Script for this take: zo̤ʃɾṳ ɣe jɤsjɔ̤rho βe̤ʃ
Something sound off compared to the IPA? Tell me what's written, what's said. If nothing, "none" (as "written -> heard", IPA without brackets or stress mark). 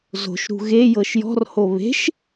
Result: s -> ʃ